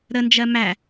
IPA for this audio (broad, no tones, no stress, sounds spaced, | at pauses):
ɾ ə n d͡ʒ ɜ m æ